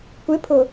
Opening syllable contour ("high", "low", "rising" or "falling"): rising